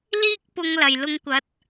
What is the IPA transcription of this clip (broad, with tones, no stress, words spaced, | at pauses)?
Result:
liː˥k̚pʊ˨˧ŋ lɐ˨˩jlʊ˧ŋkʷɐ˨˥t̚